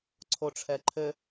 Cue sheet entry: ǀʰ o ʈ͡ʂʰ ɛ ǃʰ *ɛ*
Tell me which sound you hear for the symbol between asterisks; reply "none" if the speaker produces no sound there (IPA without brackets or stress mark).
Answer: ɘ